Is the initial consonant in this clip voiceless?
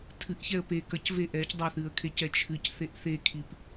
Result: yes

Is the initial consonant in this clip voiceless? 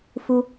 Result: yes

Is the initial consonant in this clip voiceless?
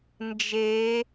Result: no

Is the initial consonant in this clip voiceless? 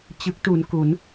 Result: yes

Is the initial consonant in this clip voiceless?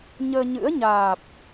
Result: no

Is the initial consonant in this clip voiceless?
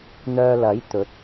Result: no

